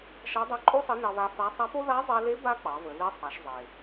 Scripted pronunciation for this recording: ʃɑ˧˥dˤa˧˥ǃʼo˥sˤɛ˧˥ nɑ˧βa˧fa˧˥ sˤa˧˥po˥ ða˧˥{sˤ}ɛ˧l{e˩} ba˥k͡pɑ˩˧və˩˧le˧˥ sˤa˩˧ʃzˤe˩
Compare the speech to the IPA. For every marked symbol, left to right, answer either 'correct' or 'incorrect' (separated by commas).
incorrect, incorrect